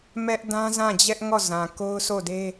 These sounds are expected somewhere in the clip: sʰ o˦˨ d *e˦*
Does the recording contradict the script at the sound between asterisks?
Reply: no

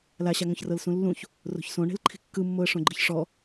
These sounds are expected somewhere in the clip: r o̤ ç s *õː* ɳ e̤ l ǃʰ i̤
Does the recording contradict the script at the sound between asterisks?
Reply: yes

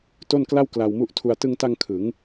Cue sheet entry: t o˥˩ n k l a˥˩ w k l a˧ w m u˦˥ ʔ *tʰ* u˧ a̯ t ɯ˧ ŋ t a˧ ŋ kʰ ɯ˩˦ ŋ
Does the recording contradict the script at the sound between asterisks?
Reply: no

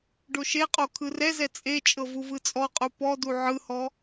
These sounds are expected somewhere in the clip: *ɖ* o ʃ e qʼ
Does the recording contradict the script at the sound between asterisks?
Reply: no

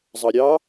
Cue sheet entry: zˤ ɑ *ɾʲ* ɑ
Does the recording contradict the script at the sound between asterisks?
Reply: no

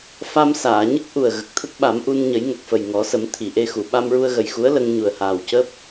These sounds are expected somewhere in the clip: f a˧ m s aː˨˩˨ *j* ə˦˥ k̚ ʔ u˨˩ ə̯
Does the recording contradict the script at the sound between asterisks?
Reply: yes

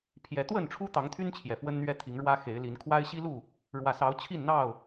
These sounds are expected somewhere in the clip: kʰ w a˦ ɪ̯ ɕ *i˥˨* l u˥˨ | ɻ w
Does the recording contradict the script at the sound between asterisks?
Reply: yes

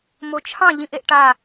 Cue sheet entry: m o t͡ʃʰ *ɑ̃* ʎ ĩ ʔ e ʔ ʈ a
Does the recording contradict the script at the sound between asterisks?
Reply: no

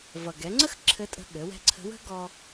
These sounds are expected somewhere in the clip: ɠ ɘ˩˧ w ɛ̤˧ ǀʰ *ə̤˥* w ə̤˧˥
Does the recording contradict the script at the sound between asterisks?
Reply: yes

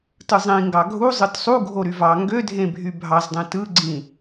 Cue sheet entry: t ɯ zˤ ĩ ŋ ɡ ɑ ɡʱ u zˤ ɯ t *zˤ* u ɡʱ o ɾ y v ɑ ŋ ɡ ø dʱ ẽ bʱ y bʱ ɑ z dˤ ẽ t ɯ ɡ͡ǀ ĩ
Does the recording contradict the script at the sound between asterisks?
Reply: yes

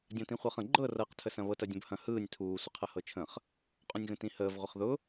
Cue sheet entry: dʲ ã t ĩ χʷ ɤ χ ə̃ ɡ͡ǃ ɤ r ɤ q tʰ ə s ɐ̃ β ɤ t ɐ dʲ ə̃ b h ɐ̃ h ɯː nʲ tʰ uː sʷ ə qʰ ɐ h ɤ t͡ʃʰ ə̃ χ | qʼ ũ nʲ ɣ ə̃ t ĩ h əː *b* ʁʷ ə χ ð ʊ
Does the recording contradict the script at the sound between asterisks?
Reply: yes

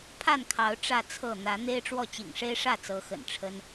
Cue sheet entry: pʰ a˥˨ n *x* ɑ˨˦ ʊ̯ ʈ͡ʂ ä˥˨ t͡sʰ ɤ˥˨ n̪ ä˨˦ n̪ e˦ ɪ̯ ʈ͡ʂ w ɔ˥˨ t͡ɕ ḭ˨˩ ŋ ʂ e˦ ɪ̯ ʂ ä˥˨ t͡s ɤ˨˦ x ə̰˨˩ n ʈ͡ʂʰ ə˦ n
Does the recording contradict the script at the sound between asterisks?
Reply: yes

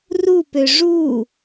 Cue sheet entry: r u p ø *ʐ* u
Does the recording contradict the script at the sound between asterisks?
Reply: no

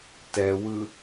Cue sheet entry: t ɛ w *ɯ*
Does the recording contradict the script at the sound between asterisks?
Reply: no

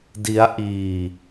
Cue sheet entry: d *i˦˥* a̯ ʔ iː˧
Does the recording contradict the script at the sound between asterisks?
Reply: no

